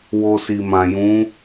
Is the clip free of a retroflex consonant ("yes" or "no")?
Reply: yes